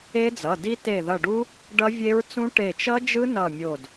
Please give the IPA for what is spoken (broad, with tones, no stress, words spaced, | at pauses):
e˦˥d͡zʌ˩˧˩ di˦˥ te˧˩ðʌ˧˩ɖu˦˥ | ɖʌ˦˥vʲe˦˥ɹt͡sũ˦˥ ʈe˧˩t͡ʃʌ˦˥d͡ʒɯ˦˥ nʌ˧˩mʲo˧˩d